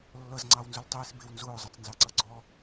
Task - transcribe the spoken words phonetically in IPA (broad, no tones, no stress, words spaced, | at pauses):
lːʌzŋ͡ǀɑwnzʊl tˤiːsbɪw nzʊːzˤʌt͡snzɑǀʌ ɡ͡ǀɔ